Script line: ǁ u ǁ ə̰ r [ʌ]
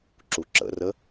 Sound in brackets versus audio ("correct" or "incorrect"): incorrect